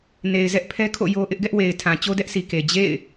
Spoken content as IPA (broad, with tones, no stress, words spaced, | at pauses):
ne˨ɪ̯zɛ˦ʔ pʰɛ˦kʰo̰˦˨ jo˦ ʔɪ˦ʔɡɛ˦ʔwe˨ɪ̯tʰã˨ t͡ɕo˦dɛ˦ʔsi˨ke˨ d͡ʑḛ˦˨ɪ̯